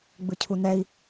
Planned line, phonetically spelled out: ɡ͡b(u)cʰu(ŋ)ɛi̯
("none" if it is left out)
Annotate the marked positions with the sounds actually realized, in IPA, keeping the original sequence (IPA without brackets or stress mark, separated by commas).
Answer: ɯ, n